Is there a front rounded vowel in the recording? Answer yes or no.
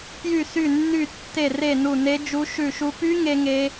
yes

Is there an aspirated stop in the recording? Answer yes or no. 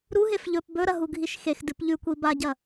no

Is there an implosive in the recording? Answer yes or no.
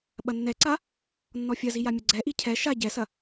yes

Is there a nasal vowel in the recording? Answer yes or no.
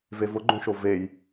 yes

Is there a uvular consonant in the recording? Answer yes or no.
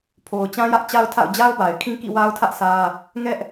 no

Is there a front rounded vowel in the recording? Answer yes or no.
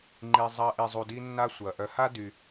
yes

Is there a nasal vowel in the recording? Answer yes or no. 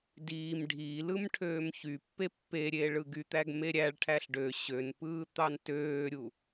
no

